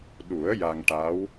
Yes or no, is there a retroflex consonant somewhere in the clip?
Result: yes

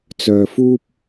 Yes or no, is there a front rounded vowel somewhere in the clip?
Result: yes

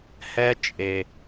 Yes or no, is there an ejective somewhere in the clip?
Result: yes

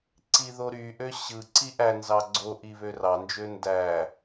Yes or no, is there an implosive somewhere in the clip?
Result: no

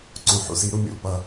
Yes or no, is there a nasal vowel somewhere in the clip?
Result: yes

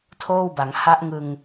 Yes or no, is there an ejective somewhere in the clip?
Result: no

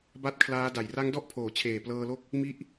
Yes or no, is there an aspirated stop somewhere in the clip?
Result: yes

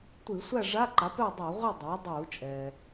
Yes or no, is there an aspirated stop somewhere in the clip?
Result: no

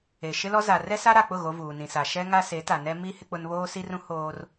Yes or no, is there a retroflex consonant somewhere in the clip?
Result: no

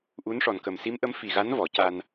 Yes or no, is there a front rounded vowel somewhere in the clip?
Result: no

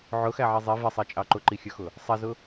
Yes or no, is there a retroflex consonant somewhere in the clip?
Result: no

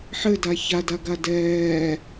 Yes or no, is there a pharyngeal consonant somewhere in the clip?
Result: yes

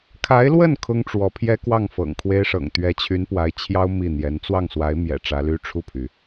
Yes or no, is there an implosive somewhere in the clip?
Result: no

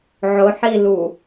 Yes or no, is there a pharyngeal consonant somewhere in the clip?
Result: yes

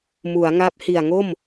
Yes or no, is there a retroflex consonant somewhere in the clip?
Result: no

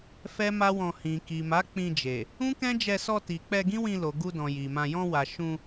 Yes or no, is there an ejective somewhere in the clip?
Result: no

